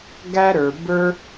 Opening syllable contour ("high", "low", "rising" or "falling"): high